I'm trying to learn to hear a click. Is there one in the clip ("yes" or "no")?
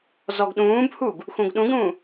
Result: no